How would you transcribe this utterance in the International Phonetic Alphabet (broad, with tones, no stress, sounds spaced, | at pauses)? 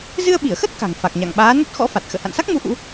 z ɨ˧ ə̯ ɓ i˧˩ ə̯ x ə˦˥ t̚ k a̤˨˩ ŋ f a˨˩ k̚ ɲ a̰˧˨ ŋ ɓ aː˨˦ n ə˦˥ t̚ x ɔ̰˧˥ f a˨˩ t̚ x ə̰ː˧˨ h a̰˧˨ n s a˦˥ k̚ m u˨˦ ʔ ṵ˧˥